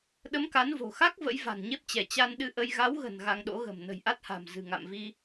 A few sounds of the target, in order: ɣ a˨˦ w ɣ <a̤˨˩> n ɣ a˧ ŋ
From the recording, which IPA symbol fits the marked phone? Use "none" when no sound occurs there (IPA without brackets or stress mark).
ə̤˨˩